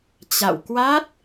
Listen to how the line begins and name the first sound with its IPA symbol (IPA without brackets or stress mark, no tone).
t͡ɕ